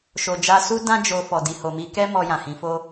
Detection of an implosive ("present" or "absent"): absent